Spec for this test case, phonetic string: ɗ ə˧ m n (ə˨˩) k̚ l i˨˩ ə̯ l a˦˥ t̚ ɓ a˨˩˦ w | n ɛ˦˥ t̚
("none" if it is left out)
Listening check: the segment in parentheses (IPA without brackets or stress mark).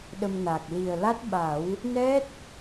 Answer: a˨˩